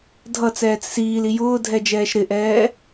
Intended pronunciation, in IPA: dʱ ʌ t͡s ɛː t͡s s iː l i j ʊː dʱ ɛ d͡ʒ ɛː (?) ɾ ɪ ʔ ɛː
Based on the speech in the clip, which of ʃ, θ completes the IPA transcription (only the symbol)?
ʃ